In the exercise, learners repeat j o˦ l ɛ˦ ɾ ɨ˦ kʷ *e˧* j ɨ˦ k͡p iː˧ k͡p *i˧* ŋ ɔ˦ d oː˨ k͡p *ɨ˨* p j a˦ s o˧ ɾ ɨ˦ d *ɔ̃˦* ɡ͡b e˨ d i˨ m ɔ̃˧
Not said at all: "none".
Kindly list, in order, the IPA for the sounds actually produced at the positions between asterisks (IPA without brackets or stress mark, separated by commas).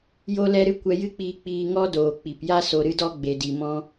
ɛ˧, iː˧, i˨, ɔ˦